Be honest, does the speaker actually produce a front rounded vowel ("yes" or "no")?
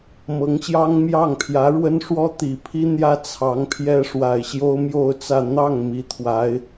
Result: no